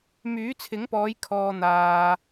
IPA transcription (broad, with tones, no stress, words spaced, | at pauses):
myː˨˥t͡sʰɪ˨˥ŋpɔː˨˧j kʰɔː˧n̪aː˧